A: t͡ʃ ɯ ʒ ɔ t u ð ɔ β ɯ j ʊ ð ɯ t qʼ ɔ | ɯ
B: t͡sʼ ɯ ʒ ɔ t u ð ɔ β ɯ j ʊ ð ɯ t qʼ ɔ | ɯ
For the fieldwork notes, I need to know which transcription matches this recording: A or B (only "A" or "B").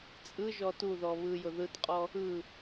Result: B